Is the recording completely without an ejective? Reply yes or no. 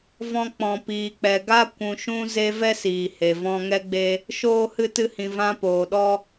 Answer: yes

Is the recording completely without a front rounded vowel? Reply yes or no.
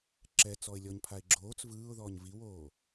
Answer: yes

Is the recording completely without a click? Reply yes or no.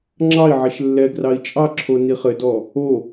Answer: no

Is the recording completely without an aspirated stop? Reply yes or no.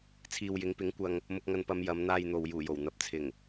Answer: no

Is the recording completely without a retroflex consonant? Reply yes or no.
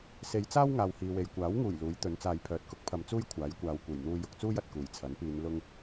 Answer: yes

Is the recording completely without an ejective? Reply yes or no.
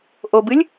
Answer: yes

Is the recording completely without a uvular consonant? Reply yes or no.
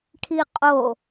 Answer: no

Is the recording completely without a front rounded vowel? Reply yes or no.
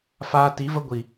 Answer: yes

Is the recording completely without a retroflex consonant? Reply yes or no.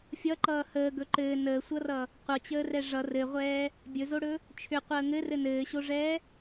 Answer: no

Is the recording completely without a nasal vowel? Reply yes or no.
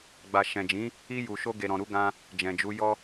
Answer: no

